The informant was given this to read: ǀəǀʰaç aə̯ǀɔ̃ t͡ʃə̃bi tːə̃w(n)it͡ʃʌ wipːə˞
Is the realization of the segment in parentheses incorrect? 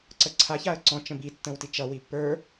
yes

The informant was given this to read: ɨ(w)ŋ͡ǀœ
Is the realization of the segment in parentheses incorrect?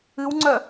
no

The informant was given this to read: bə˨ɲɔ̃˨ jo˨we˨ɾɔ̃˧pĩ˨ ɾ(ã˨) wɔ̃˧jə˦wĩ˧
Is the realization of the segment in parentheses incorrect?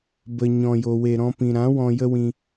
yes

